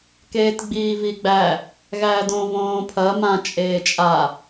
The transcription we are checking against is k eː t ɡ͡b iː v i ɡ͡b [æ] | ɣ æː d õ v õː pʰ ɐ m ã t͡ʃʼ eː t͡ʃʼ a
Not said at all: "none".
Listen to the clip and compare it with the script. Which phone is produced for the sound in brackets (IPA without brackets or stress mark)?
æ